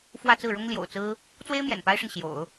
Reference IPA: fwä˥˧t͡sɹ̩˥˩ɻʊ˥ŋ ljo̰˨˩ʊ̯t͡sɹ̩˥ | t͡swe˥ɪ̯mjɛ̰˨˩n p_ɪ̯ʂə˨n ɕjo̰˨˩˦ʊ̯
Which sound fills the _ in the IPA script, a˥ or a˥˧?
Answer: a˥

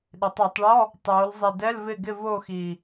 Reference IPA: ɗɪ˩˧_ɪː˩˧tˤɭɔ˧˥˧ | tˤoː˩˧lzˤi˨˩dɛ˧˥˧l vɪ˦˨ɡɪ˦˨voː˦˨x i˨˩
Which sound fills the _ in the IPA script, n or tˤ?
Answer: tˤ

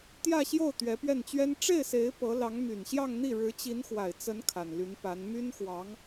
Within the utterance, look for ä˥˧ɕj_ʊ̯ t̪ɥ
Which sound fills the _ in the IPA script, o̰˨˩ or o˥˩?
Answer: o˥˩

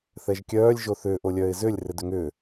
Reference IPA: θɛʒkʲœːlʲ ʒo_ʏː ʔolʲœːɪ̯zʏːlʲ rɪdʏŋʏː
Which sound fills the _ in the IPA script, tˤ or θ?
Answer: θ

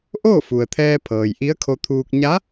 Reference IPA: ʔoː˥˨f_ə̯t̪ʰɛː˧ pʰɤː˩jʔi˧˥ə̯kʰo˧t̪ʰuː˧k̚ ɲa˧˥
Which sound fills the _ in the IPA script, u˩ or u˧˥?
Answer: u˩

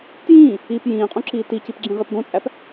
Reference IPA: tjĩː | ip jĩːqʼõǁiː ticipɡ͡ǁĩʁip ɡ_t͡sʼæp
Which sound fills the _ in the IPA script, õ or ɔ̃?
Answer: õ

